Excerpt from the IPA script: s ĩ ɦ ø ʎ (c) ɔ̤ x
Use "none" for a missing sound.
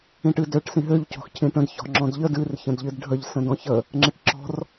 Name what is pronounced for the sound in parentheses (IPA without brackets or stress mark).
c